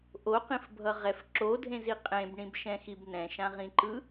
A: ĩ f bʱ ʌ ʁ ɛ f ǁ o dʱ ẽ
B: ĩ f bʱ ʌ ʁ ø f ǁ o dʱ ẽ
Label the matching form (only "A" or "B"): A